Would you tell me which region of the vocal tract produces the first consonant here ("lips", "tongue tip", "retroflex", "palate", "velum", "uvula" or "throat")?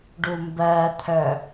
retroflex